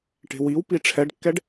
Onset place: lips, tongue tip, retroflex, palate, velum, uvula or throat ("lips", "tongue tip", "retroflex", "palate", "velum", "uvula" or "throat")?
retroflex